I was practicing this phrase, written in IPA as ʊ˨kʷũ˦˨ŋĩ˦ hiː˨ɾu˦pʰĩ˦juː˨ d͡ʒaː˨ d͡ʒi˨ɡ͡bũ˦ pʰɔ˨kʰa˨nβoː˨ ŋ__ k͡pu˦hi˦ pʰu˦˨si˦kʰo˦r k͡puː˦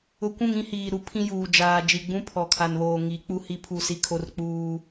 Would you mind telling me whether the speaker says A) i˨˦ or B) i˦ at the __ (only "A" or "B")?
A